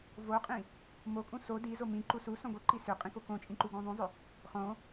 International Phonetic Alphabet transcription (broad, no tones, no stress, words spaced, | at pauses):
voqʼĩ | mokʼũ so di zomĩǃu susõ ɡoǃi sʏqʼĩ kokõt͡ʃʼĩ ǃuɡũðˤũzˤʏ | χõ